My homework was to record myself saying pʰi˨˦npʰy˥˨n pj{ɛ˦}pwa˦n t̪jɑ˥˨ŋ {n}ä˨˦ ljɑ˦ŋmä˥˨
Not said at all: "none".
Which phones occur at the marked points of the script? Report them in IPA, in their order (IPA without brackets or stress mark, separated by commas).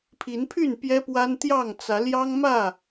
ɛ˦, t͡s